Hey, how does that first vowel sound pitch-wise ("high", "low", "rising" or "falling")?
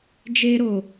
high